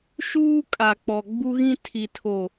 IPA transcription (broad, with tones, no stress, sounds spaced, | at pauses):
ʃ uː˦ kʼ a˨ k͡p ɔ˨ ɡ͡b u˦ ɣ ĩ˦ tʰ i˨ tʰ o˨